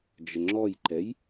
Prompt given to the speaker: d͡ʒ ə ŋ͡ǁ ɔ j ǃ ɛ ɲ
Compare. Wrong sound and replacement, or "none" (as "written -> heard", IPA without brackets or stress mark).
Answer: ɲ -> j